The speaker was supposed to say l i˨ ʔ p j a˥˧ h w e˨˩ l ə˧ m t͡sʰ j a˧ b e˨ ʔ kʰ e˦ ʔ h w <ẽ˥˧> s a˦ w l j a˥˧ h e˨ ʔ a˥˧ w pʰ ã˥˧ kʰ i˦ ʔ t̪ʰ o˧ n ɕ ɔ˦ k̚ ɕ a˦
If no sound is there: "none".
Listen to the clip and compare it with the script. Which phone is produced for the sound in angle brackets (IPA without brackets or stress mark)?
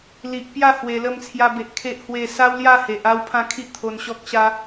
e˥˧